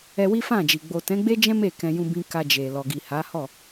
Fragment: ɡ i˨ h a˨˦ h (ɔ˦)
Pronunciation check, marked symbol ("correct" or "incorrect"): incorrect